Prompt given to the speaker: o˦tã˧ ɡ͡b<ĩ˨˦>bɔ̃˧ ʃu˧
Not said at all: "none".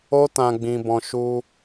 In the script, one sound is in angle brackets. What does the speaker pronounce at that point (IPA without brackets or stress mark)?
ĩ˧